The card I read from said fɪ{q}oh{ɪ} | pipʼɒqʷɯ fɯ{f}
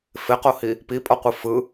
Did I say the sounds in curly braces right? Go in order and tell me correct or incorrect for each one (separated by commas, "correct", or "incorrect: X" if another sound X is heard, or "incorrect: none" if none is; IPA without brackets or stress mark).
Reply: correct, incorrect: i, incorrect: none